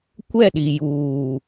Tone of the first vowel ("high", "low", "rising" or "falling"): falling